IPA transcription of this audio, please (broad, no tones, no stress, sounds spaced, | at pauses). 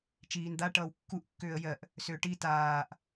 t͡ʃ iː n d̪ a ʈ ʌː w kː u ʔ kː ʏː ə̯ j ɜ ʔ | s ʏː ʈ i t aː ʔ